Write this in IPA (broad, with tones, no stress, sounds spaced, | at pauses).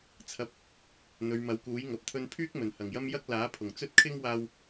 t͡sʰ ɐ˨˥ p̚ | n̪ ɵ˨˧ ɥ m ɐ˨˥ w k uː˨˥ j ŋ ɐ˨ p̚ t̪ʰ ɵ˧ n pʰ yː˥ k̚ m ɵ˨˩ n h ɐ˨˩ ŋ j ɐ˥ m j ɐ˥ k̚ l aː˨˥ pʰ ʊ˨˩ ŋ t͡s ɵ˥ t̚ kʰ ɪ˥ ŋ w aː˧ w